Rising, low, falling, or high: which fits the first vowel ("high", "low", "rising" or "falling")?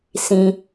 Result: low